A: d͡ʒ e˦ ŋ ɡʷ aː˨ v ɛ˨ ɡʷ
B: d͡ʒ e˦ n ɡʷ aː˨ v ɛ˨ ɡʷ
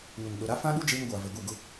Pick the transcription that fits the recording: A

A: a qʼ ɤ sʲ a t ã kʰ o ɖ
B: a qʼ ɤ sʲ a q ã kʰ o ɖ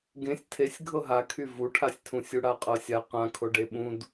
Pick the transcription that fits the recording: B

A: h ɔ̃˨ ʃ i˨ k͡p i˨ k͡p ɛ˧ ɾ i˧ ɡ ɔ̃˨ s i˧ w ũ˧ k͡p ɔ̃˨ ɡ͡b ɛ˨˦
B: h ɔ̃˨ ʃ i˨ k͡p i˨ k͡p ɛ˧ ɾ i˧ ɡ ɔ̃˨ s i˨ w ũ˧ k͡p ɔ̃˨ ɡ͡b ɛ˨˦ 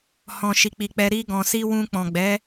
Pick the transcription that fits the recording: A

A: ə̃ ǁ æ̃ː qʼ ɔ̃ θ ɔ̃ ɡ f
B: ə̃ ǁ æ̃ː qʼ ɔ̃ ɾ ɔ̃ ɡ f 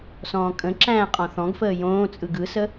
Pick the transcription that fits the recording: A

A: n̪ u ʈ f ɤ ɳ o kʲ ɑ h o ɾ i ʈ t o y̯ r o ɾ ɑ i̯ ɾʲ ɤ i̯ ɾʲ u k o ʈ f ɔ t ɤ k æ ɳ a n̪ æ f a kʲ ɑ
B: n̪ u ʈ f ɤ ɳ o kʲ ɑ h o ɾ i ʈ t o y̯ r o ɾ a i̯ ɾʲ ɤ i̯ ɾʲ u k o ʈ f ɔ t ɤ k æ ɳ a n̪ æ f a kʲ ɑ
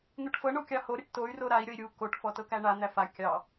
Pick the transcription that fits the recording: B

